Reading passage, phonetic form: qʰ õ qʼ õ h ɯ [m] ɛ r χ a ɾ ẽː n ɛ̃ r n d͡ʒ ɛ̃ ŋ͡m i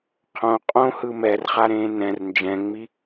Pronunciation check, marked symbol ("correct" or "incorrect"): correct